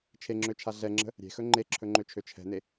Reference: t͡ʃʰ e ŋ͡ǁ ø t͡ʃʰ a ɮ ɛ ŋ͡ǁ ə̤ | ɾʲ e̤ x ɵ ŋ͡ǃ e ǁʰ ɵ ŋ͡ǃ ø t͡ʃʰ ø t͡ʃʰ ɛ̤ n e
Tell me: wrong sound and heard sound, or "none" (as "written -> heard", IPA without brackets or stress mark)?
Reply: none